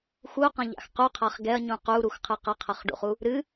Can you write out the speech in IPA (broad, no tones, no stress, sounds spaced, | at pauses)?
x u q ɐ̃ ʎ a̰ x q u qʰ a χ ɡ ɛ ɐ̯ ɲ ũ q u ɾ u x qʰ ɨ q ɐ qʰ ɐ χ ɖ ṵ χ u | ɾ ɨ